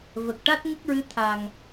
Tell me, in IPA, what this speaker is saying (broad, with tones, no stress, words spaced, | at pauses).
və˨˩k̚ʈa˦˥t̚ ŋə˦˥k̚ɹɨ˧˥ t̪ʰa˨˩ŋ